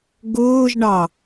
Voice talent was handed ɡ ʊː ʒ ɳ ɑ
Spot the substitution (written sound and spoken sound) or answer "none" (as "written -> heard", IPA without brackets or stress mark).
none